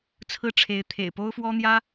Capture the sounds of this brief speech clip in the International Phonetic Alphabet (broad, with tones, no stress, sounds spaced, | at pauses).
t͡sʰ ɹ̩˥˩ ʈ͡ʂʰ e˧˥ ɪ̯ t̪ʰ ḛ˨˩ ɪ̯ p o˥ ʊ̯ f w ɔ˥ n̪ j ä˥